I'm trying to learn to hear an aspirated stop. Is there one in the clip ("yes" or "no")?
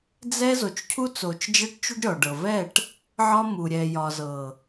yes